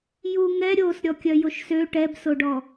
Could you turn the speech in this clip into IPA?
juŋɛ ɾʲos ɾʲɔkʲœjoʃsø ʈɛbsoɖɔ

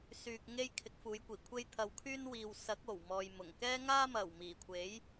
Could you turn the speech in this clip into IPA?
syː˨k̚ ŋe˥jkʰɪ˨˥k̚ fuː˨˧jkʷiː˨˩kʷʰe˥j t̪ʰɐ˧wkʰyː˥n wiː˨w sɐ˨˥k̚ o˨˩wmɔː˨jmʊ˨˩ŋ kɛː˥ŋaː˥ mɐ˨˩wmiː˨˩kʷʰe˨˥j

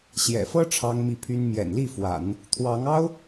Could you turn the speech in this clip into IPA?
ɕjɛ̰˨˩fɤ˥ ʈ͡ʂʰɑ˥ŋmi˥˩pʰy˥n mjɛ̰˨˩nli˥˩fwa̰˨˩˦n | t̪ʰwɑ˧˥ŋɑ˥ʊ̯

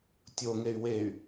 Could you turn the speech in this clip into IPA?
tʲoŋey̯ wey̯

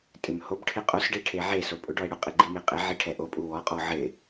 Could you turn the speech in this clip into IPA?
tʼɪmhobʈʰɪ qʼosɖe ʈʰeʕeso pʼʊɖɔe̯ ɽʊqʼɪ ɡ͡ǃimeqʼɪʕi ʈʰɛʔopʼu wɔqʼɔ ʕɪ

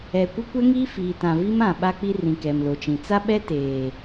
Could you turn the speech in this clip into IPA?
ɛ˨ kʷɪ˦kʷɛ˦ŋiː˦ fiː˨tã˨vi˦mã˨ ɓa˦k͡pi˦ rĩ˨kɛ˨mlo˨t͡ʃĩ˨ t͡sa˦ɓɛ˦ teː˨

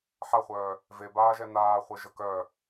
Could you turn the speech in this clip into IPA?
ħaχʷœː | vebaːʒɛ naːχʷeʒə kœ

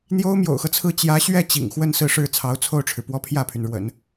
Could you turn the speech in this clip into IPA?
n̪jo˥ʊ̯mjo̰˨˩ʊ̯xɤ˦t͡sʰɹ̩˥˩ t͡ɕjä˧˥ɕɥɛ˥˩ t͡ɕḭ˨˩ŋxwə˥˧n sɹ̩˥˧ʂɻ̩˥˩ t͡sʰɑ˧˥ʊ̯t͡sʰo˥˩ʊ̯ʈ͡ʂʰɻ̩˩pwɔ˥ pʰjä˥˩pʰy˩nɻwə̰˨˩˦n

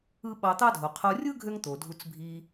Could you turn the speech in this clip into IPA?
ɯ˦ ɓɑ˧t̪ɑ˦dʱo˨ qʰo˧rʲɯ˦ ɡʱø˦ŋt̪o˨dʱu˧t͡s bʱi˧

